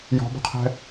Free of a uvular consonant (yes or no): no